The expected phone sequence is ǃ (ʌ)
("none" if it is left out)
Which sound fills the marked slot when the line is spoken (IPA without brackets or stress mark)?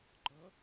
ʌ